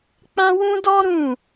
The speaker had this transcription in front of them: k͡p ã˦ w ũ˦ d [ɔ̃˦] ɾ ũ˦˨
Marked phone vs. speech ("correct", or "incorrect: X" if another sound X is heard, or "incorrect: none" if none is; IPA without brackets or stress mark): incorrect: ɔ˦